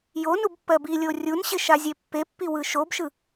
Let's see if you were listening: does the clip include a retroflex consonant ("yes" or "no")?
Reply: no